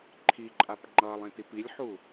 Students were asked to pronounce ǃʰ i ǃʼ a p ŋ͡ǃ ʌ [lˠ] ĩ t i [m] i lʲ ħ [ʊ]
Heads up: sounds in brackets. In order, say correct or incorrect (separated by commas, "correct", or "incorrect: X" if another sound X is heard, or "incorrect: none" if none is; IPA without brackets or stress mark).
correct, incorrect: p, incorrect: u